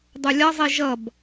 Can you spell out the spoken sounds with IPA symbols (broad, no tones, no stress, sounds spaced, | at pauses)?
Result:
dˤ u lʲ ʌ zˤ i ʒ ʌ b